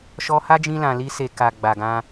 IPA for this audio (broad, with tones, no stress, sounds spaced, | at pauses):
ʃ ɔ˧ h a˦ d͡ʒ ĩ˧ l ã˨ l i˧ s e˨ k a˨ ɡ͡b a˨ ɡ ã˧